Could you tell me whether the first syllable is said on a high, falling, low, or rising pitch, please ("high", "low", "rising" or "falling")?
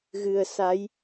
low